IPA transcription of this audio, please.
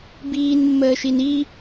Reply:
b iː n mː əː ʃ i n i

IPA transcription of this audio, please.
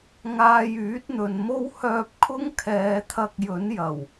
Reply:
ŋ aː˧ j yː˨˥ t̚ n̪ ɵ˨ n m o˥ w h œː˧ p̚ kʰ ʊ˥ ŋ kʰ ɛː˨˧ t̪ʰ ɐ˧ k̚ j ɵ˨˥ n j ɐ˨˩ w

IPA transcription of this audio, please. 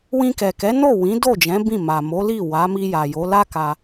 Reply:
w ĩ˧ k ɛ˨ k ɛ˨˦ n o˦˨ w ĩ˨˦ d o˦˨ d͡ʒ ɛ̃˨˦ b ĩ˦˨ m a˨ m o˨˦ l i˦˨ w a˨˦ m i˧ j a˨ j o˨˦ l a˦ k a˧

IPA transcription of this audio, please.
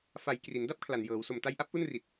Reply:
f a˩˦ j k r i˩˦ n d a˥˩ p̚ kʰ l a˨˩ n j ɤː˩˦ w s o˨˩ m t a˧ j ʔ a˦˥ p̚ ʔ u˥˩ n r i˨˩ t̚

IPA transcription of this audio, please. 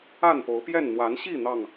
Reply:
a˥˨ n p o˨˦ ʊ̯ p j ɛ˥˨ n n̪ w a˨˦ n ɕ i˥˨ n̪ ɑ˥˨ ŋ

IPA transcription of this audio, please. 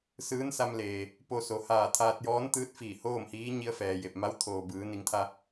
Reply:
s ɯː˧˥ n s a˧ m l eː˩ | p o˧ s o˩˧ h aː˧˩ t̪ʰ aː˧ t̚ j ɔː˧˥ n t̪ ɯː˧˥ t̚ f iː˧˩ h oː˥˨ m h iː˧˥ ɲ i˧ ə̯ f ɛː˩ j e˧˩ p̚ m a˧˥ w t̪ʰ oː˩ b ɯː˩˧ n i˩˧ ŋ t̪ʰ a˧

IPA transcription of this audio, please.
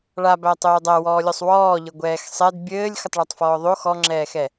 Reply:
ɭ a b æ tˤ øː dˤ æ w ɔː lʲ ɔ sˤ w ɔː ʎ ɘ ɡʷ ɛː x sˤ ɛ d bʲ ɘː lʲ x ə tˤ ɭ a tˤ f ɔː ðˤ o x ɔ ŋ͡ǁ ɛː x ɛ

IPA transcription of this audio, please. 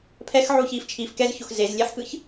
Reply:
pʰ ɛ x ʕ uː ç iː f t͡ʃʰ iː f k ɛ z ç o x z e z lʲ e ħ k ɯ ç

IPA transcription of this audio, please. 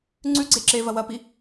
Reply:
ŋ͡ǀ ʉ ɡ͡ǀ e ǁ e v ɐ w ɐ p i

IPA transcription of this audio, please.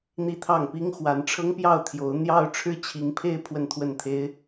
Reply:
n̪ i˥˧ t̪ʰ ɑ˥˩ ŋ p i˥ ŋ x w a˧˥ n ʈ͡ʂʰ ɤ˥ ŋ p j ɑ˥˩ ʊ̯ t̪ʰ j o˧˥ ʊ̯ n̪ j ɑ˥˧ ʊ̯ ʈ͡ʂʰ ɻ̩˥˩ t͡ɕʰ i˧˥ ŋ pʰ e˥˧ ɪ̯ pʰ w ə˥˧ n t̪ʰ w ə˥˩ n t̪ʰ e˥ ɪ̯

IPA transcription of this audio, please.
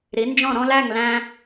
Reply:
ɾ i˨˥ n d͡ʒ ɔ̃˥˨ ɾ ɔ̃˦ l æ˥˨ ŋ l æ̃˦

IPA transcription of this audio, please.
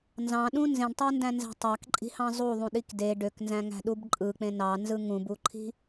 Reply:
n z ɑ̃ ɗ ũ n z ẽ ɖ tˤ ɑ n d æ̃ n z æ̤ tˤ ɑ k ǃʼ i̤ h ɑ̃ zˤ u ðˤ ũ ɗ i k d e ɖ ø k n z æ̃ ŋ æ̤ ɗ u b ǃʼ ɯ k͡p ẽ n ɑ n z ɯ ŋ ũ b u ǃʰ i̤

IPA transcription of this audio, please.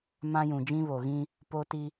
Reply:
m ã˦ j ũ˨ d͡ʒ ĩ˦ β o˨ ɣ ĩ˦ | p o˦ t i˦

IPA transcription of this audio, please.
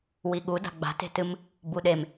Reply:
w i ɠ u d a̤ ɡ͡b a̤ t e̤ t ɨ m | b u ɗ e m

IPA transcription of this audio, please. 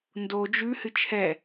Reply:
n d o d͡ʒ ʉ h ɨ t͡ʃʰ ɛ

